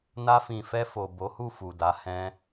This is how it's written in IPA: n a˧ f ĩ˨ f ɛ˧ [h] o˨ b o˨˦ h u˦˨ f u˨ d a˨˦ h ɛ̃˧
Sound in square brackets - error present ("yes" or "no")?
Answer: yes